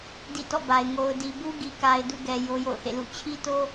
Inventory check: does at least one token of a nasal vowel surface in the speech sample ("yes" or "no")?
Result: no